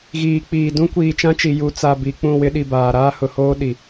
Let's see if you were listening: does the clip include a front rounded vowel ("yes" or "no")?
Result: no